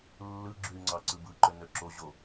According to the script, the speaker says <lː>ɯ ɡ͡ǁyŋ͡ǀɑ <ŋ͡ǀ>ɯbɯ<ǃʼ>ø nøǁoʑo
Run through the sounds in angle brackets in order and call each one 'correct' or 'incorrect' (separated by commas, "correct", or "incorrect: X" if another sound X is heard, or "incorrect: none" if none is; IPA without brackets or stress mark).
correct, incorrect: ǀ, incorrect: ǃ